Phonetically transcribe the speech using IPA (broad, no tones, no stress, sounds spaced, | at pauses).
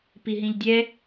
p i ɦ ĩ ʎ dʲ ɛ